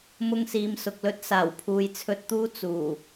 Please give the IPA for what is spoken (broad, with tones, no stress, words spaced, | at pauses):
mʊ˧ŋsiː˨msʊ˨k̚lɵ˥t̚ saː˨˩wpʰuː˨jt͡sʰɵ˧t̚t̪uː˥ t͡suː˨˩